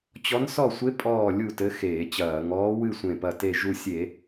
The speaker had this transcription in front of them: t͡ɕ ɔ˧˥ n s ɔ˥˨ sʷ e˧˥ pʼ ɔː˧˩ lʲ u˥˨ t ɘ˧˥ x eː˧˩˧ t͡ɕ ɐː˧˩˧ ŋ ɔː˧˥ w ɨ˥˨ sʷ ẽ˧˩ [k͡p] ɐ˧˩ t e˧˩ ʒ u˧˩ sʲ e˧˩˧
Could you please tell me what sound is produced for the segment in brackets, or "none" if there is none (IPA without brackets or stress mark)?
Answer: p